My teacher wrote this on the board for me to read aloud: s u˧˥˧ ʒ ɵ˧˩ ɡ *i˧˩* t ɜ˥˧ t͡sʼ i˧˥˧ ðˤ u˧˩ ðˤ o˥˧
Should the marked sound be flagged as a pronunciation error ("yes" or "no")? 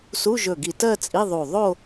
no